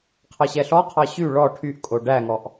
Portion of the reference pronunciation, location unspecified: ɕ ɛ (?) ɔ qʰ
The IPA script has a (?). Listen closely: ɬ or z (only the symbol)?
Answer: ɬ